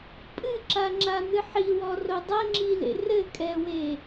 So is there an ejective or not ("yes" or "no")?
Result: yes